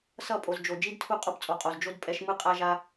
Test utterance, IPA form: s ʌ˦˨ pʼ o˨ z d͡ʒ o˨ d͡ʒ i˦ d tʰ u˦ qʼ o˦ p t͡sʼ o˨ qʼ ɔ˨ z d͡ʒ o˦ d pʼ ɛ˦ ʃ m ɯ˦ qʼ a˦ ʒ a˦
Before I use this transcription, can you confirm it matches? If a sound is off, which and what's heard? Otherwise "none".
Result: ɔ˨ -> o˨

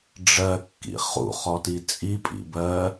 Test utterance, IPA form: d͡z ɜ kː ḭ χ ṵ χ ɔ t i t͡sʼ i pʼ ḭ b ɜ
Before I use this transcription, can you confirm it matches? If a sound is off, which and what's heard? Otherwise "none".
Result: d͡z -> ɖ͡ʐ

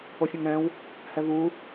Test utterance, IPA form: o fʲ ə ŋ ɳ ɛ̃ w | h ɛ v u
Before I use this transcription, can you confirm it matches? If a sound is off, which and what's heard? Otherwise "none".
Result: ə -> ə̃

